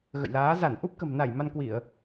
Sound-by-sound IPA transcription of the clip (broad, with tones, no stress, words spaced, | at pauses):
ɣə̰˧˨jlaː˨˦ za˧˩nʔu˦˥p̚kə̤˨˩m na˧˩j ma˧nkwi˧˩˨ə̯